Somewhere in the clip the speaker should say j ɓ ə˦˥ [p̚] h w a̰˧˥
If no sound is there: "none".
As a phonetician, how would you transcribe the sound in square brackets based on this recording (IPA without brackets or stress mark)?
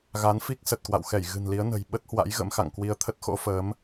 t̚